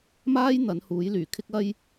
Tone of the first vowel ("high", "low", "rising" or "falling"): high